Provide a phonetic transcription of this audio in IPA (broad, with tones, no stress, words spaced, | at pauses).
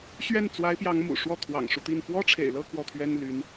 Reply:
ɕɥɛ˥˩nt͡swa˧˥ɪ̯pjɑ˧˥ŋ mṵ˨˩ʂwɔ˥˩ t̪ʰwɑ̰˨˩ŋʂu˦t̪i˥˩n pwɔ˥ʈ͡ʂʰḛ˨˩ɪ̯lɤ˥˧ kwɔ˥˩t̪ʰɥɛ˥nly˧˥n